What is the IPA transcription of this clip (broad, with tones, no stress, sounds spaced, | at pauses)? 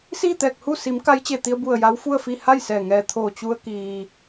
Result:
s iː˥˨ t̪ ɛː˧˩ k̚ h u˥˨ s i˩˧ m k a˧˥ j t͡ɕ e˧˩ t̪ i˧ ə̯ b u˧˩ ə̯ j a˧˥ w f u˥˨ ə̯ f i˥˨ h a˥˨ j s ɛː˧˩ ŋ ɛː˧˩ t̪ʰ oː˧˩ t͡ɕ u˧ ə̯ k iː˩